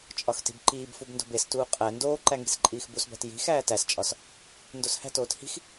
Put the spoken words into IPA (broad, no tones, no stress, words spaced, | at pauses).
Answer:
t͡ʃʼɒxti̤bǃiːbfub ndo̤bestuː qʼæ ndoːǃæ ŋi̤sǃʼiːxbusbæ̤t ji̤ xæːtæst͡ʃʼɒs | ndoshæ̤toːt hi̤x